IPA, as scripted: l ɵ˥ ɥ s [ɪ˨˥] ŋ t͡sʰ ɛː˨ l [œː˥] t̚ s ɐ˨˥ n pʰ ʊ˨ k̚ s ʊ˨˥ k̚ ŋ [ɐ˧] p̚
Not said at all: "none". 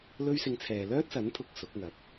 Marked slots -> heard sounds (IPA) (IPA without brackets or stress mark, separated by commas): ɪ˧, œː˥, ɐ˨˥